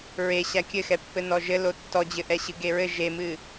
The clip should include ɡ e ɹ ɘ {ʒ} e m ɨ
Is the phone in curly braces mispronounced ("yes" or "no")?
no